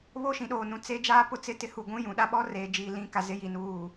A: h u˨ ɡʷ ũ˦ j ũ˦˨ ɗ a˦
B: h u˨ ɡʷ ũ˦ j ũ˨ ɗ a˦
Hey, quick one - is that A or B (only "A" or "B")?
B